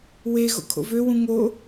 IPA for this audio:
w e ɣ o̰ kʰ o̰ v ø w ũ ŋ o

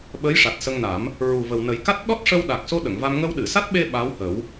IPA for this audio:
ɓ ə˧˥ j ʂ a˨˩ t̚ s ə˧ ŋ n a˨˩˦ m | ɹ u˨˩ v ə˨˩ w n ə˨˩˦ j k a˦˥ t̚ ɗ ɔ˦˥ t̚ ʂ ə˧ w ɗ a˨˩ k̚ s o˧ ɗ ə˨˩˨ ŋ v a˧ m ŋ ə˧ w ɗ ɨ˨˩˨ s a˦˥ t̚ ɓ e˧ ɓ a˧˥ w h ə˨˩˦ w

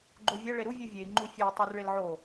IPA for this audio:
ɡ͡ǃ o vʲ æ ɭ e ɾ u vʲ u vʲ e i̯ ŋ͡ǃ u fʲ e i̯ tˤ ʉ r ɭ e l ʕ o

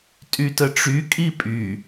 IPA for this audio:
tʼ y t ə ʈ͡ʂ y kʼ i pʼ y

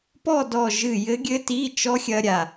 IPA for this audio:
p ɔ˥˧ d ɔ˥˧ ʒ ɨ˥˧ j ɘ˦˥ ɡʲ ɘ˦˥ t i˧˥˧ t͡ʃ ɔ˦˥ xʲ ɐ˦˥ ɾʲ a˧

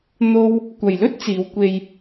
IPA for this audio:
n̪ o˥ w | kʷ ɐ˨ j l ɵ˥ t̚ t͡s iː˨˧ w kʷ e˧ j

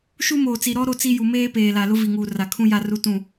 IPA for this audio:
ʃ u˦ m oː˨ t͡s i˨ ɾ ɔ˦ ɾ o˦ t͡s i˦ j u˨ m eː˦ p eː˨ l a˨ l ʊ˦ v i˨ ŋ uː˨ r a˨ kʰ ũ˦ j a˦ r u˦ t ũ˦˨

